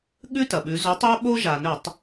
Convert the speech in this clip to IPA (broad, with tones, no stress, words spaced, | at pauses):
ɠʉ˦tɐ˩ɓʉ˩˧ zo˩˥tˤo˦ ɓo˦ ʒa˩nɵ˧˩˧tˤ